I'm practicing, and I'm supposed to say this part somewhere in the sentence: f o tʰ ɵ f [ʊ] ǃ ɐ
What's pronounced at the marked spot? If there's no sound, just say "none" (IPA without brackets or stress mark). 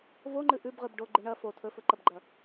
ɵ